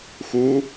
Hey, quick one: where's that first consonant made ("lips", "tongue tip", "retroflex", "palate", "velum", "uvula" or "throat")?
velum